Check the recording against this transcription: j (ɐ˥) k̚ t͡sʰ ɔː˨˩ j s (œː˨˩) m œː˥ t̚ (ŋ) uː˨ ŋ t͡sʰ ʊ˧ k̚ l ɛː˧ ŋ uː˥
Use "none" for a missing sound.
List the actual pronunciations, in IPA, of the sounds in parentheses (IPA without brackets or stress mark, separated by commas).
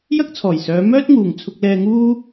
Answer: ɐ˥, œː˨˧, ŋ